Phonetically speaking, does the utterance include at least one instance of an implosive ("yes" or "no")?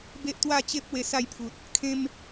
no